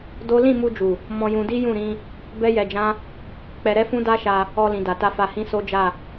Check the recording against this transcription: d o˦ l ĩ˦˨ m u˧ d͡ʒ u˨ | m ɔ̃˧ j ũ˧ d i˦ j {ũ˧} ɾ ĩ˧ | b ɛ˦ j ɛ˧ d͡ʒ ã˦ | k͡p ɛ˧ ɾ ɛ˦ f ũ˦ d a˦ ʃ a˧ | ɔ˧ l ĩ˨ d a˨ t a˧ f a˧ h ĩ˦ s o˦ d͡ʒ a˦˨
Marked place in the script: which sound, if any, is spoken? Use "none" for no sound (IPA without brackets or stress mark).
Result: ũ˦˨